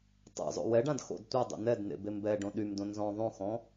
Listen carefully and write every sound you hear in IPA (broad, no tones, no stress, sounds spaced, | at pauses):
tˤ ɛ̰ zˤ o̰ w ɛ ɖ ã d x o̰ d tʷ a dˤ o̰ n ɛ d n ḛ b e m b ɛ ɖ õ ɗ y m d õ n z ɔ̃ ðˤ õ x ɔ̃